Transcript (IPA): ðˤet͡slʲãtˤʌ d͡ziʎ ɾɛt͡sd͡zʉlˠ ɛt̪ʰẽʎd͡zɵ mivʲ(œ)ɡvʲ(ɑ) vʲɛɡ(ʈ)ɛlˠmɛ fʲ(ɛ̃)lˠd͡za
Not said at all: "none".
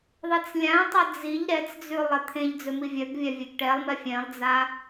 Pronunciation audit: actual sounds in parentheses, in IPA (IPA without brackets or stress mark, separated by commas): œ, a, ʈ, ɛ̃